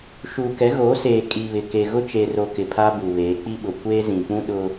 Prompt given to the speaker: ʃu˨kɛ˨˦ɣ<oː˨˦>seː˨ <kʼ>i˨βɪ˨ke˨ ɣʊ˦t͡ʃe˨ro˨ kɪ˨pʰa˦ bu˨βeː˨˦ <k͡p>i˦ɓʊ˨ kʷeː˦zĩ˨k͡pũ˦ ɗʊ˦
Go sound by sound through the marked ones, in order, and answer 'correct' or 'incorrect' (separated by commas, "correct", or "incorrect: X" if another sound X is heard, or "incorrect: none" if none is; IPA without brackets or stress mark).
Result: correct, correct, correct